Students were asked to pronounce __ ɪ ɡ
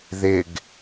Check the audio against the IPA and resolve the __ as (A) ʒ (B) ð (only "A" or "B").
B